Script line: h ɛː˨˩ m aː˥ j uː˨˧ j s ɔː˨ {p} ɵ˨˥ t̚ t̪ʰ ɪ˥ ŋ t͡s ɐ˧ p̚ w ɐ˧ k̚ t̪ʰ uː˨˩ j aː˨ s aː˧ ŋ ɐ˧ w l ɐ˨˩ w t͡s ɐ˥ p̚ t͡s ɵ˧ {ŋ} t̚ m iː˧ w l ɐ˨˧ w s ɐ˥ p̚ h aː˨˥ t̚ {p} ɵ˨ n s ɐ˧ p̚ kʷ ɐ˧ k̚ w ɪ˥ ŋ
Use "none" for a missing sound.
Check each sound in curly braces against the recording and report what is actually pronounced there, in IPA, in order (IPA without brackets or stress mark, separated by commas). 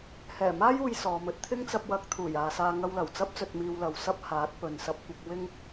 m, none, p